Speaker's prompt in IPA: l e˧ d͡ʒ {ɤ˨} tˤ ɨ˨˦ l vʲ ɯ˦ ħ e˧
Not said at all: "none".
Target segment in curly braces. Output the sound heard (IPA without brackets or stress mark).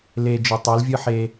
ɯ˨